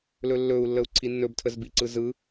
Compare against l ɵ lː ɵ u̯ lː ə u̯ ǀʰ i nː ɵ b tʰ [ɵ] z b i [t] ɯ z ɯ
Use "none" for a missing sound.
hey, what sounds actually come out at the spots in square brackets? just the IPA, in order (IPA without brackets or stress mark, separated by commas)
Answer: ə, ǀ